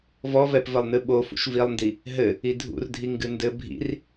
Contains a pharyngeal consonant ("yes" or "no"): no